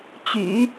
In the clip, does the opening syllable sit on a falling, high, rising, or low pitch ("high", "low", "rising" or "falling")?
low